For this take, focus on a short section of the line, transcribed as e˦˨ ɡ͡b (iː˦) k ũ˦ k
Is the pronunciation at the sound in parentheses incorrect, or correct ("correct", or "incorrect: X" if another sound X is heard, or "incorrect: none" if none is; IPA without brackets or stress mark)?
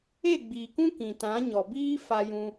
incorrect: iː˨